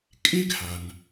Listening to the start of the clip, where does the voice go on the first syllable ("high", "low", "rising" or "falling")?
high